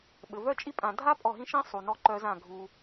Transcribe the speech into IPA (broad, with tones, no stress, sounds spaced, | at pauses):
ɓ ɘ˨ v œ˦ t͡ʃʼ i˧ pʼ ã˨ dʱ a˦ pʼ ɔ˦˨ ɦ ĩ˦ ʃ ĩ˦ sˤ u˨ n ɔ˧ ǃ œ˧ z ã˦˨ ɡʱ u˧